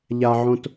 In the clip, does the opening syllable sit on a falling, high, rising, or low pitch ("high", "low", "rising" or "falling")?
low